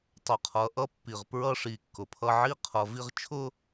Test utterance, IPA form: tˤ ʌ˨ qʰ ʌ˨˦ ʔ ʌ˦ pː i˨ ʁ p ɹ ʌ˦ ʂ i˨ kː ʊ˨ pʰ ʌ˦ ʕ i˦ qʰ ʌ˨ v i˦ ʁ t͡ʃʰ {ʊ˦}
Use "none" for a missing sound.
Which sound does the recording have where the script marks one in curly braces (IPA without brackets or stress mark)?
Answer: ʊ˦